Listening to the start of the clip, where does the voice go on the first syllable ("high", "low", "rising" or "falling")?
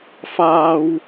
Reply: high